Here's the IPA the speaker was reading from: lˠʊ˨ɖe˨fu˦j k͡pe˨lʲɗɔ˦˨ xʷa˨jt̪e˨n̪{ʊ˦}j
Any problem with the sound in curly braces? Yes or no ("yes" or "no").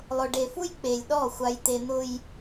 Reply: no